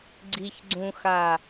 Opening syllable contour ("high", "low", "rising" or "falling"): high